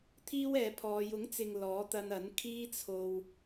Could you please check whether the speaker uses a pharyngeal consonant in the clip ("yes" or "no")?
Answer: no